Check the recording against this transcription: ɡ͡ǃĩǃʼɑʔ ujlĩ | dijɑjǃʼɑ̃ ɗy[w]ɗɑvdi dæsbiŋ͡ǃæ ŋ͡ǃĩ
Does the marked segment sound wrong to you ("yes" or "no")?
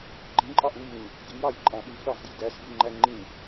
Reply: yes